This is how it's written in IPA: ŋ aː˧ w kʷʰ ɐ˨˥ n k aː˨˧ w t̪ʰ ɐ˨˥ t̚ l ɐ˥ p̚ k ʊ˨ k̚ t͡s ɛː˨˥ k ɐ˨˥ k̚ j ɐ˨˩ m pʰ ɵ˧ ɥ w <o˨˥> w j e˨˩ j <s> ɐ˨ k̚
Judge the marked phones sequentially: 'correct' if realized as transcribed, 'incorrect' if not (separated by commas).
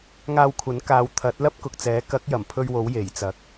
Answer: correct, incorrect